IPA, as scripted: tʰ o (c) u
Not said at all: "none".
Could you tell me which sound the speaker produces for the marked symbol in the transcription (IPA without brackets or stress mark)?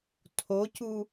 c